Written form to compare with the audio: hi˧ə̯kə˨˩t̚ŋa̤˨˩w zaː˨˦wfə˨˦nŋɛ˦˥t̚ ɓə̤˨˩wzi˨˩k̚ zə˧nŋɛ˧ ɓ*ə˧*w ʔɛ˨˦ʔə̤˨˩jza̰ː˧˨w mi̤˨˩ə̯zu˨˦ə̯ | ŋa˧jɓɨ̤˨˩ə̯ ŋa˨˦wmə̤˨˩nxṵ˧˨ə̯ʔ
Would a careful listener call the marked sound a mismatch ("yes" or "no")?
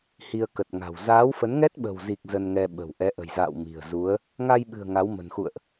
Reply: yes